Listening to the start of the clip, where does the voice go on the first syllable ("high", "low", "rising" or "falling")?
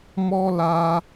high